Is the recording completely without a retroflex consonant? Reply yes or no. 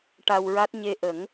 no